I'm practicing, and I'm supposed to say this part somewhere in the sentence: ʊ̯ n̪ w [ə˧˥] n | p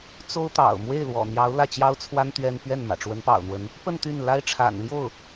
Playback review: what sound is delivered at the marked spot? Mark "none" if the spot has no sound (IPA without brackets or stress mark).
ə˧˥